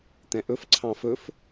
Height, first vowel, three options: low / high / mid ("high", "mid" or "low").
mid